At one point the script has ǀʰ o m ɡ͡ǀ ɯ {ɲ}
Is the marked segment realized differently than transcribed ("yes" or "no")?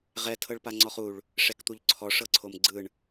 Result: yes